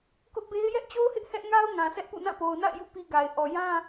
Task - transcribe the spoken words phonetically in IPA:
k ʊ˦ ʔ b e˦ ɪ̯ j ɛ˦ ʔ t͡ɕ o˦ ʊ̯ h ɪ˦ ʔ h ɛ˦ ʔ ŋ a˦ ʊ̯ ŋ ã˨ s ɛ˦ ʔ p ṵ˦˨ n ã˦˨ p o˨ ʊ̯ n a̰˦˨ ɪ̯ j ṵ˦˨ p i˦ ɡ a˨ ɪ̯ ʔ ɔ˨ j ã˦

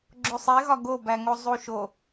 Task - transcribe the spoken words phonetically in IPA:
ɡ͡ǁ o sˤ e ɣ ɒ ɡ o b æ ŋ o zˤ u ʃ o

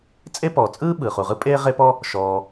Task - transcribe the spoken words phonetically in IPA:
t͡sʼ e˥ p ɔː˩ t͡sʼ ɯː˥ ɓ ɯː˩ χ u˩ ʁ ɯ˥ pʼ eː˥ ʁ e˥ p ɔ˥ | ʃ ɔː˩

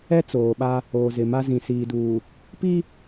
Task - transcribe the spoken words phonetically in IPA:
ɛ˦ t͡s oː˨ ɓ a˦ | oː˨ z ɪ˨ m a˦ z ĩ˨ s iː˨ d uː˨ | p i˦

